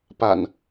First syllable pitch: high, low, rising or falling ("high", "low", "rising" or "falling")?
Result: low